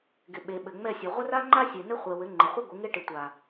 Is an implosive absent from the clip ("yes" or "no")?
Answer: no